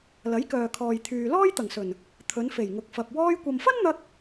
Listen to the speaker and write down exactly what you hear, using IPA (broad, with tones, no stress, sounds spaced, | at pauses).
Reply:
l ɐ˨˥ j k œː˨ kʰ ɔː˨ j t̪ʰ yː˨ l ɔː˥ j t̪ ɐ˨˩ ŋ s ɵ˨˩ n | t̪ʰ ɵ˨˧ n f e˨˩ j ŋ ʊ˨˥ k̚ f ɐ˨ p̚ w ɔː˧ j kʷ ɐ˨ m f ɐ˥ n n̪ ɐ˧ k̚